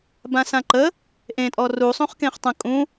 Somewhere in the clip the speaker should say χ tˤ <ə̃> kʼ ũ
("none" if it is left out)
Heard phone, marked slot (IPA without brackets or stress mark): ə̃